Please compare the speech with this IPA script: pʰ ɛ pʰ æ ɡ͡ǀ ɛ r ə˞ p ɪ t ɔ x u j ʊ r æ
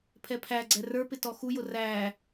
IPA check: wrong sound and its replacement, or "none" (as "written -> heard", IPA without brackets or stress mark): none